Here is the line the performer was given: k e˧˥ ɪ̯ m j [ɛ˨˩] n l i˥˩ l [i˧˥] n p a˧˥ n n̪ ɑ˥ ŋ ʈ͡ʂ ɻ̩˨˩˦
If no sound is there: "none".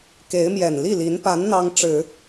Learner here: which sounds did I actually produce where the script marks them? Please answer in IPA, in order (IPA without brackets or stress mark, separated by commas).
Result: ɛ˨˩, i˧˥